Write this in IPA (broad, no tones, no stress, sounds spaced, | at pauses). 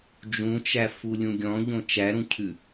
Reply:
d͡ʒ ũ t͡ʃ æ f u lʲ ũ ɡʲ ɔ̃ ʎ õ t͡ʃ æ ɾ ũ cʰ ʉ